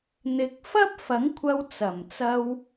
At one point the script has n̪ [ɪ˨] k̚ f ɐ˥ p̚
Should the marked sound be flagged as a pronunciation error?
yes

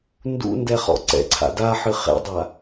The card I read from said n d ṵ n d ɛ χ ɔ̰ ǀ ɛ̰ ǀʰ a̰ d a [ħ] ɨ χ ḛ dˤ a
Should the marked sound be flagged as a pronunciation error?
no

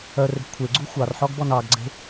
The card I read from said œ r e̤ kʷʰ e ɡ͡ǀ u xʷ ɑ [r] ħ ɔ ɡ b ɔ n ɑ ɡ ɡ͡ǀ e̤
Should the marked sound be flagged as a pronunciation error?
no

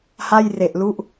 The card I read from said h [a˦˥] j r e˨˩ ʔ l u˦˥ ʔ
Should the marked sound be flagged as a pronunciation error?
yes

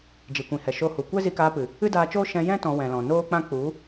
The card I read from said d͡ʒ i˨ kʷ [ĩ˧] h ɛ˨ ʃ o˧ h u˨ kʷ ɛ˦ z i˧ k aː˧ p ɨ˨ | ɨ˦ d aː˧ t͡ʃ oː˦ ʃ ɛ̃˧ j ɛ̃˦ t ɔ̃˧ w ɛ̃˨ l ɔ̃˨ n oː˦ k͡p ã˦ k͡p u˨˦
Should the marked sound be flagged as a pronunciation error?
yes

